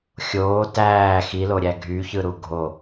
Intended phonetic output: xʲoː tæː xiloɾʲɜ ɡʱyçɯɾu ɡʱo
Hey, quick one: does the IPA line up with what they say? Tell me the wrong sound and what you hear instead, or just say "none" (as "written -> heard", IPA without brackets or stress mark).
ɜ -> æ